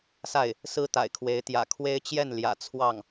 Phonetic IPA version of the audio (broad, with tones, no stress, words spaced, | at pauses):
sa˥˩ɪ̯ | sɹ̩˥ t̪a̰˨˩ɪ̯kʰwe˧˥ɪ̯ t̪jä̰˨˩kʰwe˥ɪ̯t͡ɕjɛ˥˩nljä̰˨˩ t͡sʰwɑ˥˩ŋ